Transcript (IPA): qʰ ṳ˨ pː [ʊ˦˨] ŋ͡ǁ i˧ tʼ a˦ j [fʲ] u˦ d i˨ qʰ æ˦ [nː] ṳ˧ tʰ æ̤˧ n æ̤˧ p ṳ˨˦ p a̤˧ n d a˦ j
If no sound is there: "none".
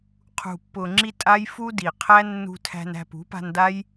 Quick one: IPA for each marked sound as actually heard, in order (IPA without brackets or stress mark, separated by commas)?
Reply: ʊ˨, f, nː